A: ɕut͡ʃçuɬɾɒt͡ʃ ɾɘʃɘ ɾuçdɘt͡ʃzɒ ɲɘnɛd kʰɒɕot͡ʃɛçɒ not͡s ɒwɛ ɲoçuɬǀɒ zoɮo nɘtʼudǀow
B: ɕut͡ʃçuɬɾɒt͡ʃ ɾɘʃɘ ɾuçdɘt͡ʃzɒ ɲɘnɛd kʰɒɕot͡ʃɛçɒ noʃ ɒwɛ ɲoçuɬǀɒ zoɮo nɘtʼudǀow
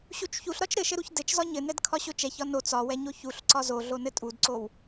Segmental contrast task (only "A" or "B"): A